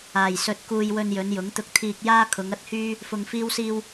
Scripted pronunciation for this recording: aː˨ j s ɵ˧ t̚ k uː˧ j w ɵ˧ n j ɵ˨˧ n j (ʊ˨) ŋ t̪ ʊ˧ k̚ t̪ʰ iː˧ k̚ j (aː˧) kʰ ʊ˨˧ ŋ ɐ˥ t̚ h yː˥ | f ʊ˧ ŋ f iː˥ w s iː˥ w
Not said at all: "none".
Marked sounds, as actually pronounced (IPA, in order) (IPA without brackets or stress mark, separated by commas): ʊ˨˥, aː˥